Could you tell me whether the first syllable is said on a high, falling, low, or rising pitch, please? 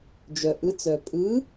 low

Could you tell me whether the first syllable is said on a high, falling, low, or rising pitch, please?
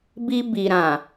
high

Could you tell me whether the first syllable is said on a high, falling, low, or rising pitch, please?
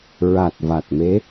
low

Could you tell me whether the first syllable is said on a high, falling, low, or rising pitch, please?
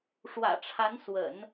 low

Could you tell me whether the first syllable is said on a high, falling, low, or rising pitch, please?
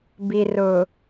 low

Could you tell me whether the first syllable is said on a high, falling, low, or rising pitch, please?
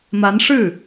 rising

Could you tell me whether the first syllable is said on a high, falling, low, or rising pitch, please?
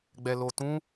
low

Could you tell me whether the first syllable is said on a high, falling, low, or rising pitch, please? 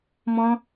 high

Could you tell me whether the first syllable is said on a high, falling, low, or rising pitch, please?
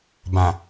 low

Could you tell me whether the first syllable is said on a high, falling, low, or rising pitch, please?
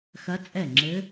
rising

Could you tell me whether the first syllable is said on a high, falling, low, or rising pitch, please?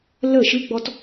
falling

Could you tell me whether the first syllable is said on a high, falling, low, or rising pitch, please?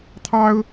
high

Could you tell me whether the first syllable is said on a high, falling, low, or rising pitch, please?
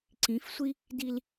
rising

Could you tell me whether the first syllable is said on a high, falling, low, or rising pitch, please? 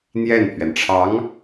falling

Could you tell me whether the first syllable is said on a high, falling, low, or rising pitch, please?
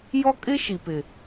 high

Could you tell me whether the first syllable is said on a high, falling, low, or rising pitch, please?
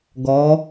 rising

